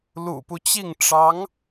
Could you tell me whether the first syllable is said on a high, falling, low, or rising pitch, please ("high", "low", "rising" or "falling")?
low